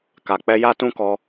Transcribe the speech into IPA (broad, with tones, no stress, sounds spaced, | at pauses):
k a˨ k͡p ɛ˧ j a˦ t ũ˦ k ɔ˧